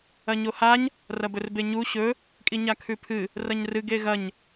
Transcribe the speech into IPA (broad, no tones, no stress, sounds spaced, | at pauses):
ɐ ɲ o h a ɲ | r ɐ b ɵ r b e ɲ u ɕ ɵ | kʼ i ɲ a kʰ ʉ pʰ ɨ | r ɐ ɲ r ɨ ɡ e ɣ ɐ ɲ